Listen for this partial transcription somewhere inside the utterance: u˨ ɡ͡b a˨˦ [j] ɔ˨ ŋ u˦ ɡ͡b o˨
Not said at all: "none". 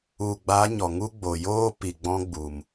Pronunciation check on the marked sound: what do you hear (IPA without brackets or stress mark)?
ɲ